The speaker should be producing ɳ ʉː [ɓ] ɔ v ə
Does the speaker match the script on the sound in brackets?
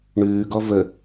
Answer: no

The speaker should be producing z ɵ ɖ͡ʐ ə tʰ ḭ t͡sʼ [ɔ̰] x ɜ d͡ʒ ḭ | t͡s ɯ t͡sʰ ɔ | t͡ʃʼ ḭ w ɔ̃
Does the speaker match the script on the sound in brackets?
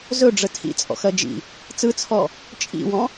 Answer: yes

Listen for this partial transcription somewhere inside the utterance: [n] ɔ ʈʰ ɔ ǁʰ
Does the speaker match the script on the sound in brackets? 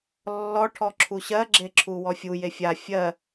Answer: no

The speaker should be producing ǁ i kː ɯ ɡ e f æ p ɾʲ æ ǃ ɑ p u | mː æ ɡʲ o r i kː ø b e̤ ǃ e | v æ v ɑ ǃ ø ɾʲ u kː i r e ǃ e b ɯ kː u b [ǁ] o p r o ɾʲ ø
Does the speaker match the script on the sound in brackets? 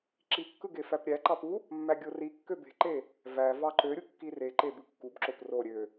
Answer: yes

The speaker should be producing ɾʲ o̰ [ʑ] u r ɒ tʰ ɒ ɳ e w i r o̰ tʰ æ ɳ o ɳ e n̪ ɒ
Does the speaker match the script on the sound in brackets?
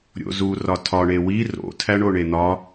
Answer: no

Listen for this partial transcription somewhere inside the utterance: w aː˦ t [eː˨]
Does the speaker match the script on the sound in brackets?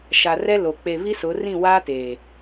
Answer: yes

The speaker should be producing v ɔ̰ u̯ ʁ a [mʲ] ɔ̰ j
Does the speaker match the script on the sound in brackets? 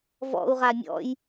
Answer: yes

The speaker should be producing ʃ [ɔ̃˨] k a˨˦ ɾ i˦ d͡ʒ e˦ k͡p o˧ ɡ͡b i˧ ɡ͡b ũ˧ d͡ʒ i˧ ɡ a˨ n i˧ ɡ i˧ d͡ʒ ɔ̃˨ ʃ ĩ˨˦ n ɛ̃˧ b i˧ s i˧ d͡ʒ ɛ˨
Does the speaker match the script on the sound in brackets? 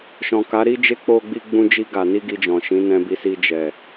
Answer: yes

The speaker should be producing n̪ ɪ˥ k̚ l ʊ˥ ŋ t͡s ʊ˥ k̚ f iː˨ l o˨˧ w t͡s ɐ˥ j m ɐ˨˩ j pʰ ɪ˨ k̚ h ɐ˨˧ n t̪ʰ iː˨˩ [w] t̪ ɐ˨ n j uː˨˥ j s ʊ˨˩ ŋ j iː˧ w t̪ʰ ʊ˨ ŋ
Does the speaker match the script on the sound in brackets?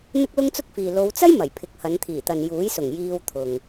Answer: no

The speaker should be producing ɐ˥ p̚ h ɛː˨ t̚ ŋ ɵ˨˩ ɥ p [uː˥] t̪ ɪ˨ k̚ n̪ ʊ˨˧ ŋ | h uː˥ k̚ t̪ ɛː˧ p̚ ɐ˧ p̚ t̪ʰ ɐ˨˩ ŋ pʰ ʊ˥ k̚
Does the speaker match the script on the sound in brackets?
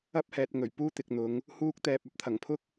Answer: yes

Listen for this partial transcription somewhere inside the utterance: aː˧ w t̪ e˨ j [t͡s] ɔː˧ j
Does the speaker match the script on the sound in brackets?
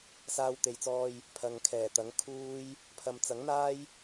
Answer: yes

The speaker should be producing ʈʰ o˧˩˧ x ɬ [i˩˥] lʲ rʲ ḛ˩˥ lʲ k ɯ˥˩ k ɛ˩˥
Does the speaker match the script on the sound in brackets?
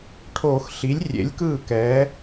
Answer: yes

